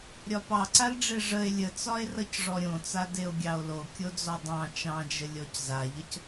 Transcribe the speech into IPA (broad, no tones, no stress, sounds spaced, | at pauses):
ɾʲ ɒ p ɑ ǀ a l ɖ͡ʐ e ʐ ə e̯ lʲ ə t͡s ɒ e̯ r ʌ c ʐ ɔ ɾʲ õ t͡s a d e o̯ ɡʲ ɑ o̯ l o kʲ o d͡z ɔ dˤ ɑ̃ t͡ʃ ɑ̃ d͡ʒ ə lʲ ɔ c z a ʎ ə c